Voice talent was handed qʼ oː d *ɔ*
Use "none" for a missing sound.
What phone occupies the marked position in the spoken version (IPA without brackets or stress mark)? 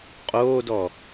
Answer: ɔ